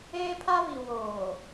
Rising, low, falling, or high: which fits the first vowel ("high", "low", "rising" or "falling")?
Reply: high